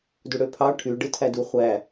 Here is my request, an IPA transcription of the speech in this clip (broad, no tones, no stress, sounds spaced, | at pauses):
d u ɽ ø pʰ ɑ ʈʰ y ɖ ɯ tʰ æ d u χʷ æ